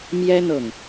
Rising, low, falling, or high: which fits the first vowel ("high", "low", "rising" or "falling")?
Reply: high